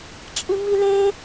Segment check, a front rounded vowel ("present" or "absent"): absent